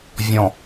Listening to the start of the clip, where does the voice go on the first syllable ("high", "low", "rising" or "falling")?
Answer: low